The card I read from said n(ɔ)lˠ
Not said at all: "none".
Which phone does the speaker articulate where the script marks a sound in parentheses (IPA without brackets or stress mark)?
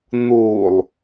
o